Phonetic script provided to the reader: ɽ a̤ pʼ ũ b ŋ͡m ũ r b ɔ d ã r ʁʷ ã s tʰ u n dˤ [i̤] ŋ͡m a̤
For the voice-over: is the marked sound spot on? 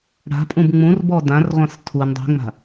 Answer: yes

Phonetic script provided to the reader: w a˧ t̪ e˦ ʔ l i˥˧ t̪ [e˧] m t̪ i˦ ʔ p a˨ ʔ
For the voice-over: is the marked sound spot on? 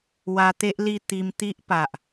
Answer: no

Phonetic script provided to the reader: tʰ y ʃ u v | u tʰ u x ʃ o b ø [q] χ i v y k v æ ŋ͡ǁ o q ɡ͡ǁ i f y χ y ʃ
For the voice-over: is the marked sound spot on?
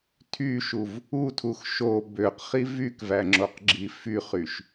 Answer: yes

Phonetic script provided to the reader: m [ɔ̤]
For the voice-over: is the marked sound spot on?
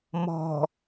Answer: yes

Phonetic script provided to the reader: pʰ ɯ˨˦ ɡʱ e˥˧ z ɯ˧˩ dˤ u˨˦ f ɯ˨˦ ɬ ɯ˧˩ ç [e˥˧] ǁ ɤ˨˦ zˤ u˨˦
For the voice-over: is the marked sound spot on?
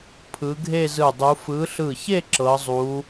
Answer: yes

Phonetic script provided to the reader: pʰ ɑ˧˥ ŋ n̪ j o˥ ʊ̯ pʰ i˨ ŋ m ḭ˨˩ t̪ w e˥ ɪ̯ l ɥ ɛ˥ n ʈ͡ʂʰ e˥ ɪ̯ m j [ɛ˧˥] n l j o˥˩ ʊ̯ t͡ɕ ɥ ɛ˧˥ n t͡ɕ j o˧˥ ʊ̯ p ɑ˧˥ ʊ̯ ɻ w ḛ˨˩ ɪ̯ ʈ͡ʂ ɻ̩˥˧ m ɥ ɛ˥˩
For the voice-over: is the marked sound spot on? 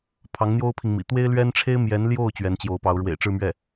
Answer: yes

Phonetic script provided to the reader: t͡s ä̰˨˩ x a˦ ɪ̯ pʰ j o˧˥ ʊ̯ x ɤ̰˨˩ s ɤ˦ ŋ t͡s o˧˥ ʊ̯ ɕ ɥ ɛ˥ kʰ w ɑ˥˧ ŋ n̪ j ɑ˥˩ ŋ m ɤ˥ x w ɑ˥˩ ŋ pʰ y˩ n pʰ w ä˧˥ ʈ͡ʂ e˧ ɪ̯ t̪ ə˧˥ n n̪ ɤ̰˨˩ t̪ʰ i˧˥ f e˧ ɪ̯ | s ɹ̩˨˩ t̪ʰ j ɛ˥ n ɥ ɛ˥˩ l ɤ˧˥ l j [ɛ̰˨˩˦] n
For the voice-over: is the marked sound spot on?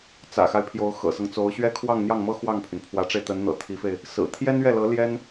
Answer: no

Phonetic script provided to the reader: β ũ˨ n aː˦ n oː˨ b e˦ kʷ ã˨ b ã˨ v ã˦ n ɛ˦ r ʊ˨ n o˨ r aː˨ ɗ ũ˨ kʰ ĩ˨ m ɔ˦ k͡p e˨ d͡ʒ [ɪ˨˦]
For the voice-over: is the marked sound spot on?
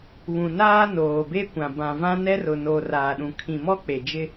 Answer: no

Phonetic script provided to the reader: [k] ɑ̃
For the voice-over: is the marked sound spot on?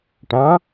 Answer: no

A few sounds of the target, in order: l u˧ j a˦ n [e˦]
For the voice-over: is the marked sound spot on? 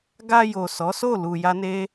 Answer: yes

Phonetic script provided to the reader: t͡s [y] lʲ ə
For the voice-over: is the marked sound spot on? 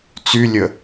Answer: yes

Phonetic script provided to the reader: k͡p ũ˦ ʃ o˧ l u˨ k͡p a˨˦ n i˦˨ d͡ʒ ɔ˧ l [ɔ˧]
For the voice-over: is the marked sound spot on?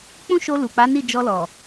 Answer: no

